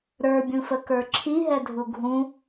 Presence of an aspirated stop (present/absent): present